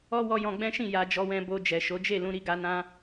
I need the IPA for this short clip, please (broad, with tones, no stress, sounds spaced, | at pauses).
ɔ˦ w ɔ˦ j ɔ̃˧ ɡ͡b ɛ̃˦ ʃ ĩ˦˨ j a˧ d͡ʒ ɔ˧ w ɛ̃˧ b o˧ d͡ʒ ɛ˨ ʃ o˨˦ d͡ʒ e˦˨ l ũ˧ ɾ i˧ ɡ a˧ n ã˦